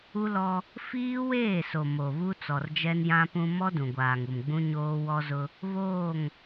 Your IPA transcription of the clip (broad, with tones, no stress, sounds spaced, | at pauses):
u˦ l ɔ˦ | f iː˦ w eː˦˨ s o˨ m o˨ β u˦ t͡s ɔ˨ r d͡ʒ ɛ˦ n j ã˦ p ũ˦ m ɔ˦ d ũ˨ ɡʷ aː˨ ŋ u˨ m ɡ͡b ũ˦ ɲ oː˦ w ɔ˦ z ʊ˦ | β oː˦˨ ŋ